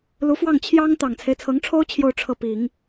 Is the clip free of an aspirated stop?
no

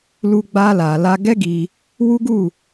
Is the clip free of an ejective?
yes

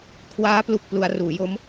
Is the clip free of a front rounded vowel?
yes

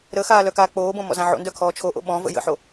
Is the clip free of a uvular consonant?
yes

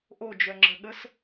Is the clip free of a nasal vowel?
yes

